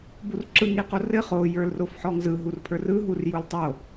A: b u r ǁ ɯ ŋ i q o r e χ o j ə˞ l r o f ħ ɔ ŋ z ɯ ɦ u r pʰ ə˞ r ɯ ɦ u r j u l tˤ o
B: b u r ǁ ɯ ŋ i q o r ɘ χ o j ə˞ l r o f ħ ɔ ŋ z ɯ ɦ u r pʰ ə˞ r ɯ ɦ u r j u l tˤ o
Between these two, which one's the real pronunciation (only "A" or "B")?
B